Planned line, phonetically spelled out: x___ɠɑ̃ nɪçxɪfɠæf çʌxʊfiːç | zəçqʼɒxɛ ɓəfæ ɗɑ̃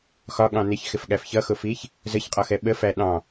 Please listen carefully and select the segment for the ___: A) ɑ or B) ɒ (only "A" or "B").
B